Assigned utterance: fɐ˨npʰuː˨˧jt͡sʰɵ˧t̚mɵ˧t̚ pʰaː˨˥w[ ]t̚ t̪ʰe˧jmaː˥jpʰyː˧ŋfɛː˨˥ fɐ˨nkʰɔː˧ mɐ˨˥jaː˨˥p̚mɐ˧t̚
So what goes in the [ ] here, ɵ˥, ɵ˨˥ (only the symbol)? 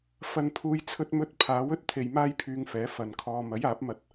ɵ˥